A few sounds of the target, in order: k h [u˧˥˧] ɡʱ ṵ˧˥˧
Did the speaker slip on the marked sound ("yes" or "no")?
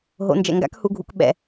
no